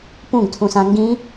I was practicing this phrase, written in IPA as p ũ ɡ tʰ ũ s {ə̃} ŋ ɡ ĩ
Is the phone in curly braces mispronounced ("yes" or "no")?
yes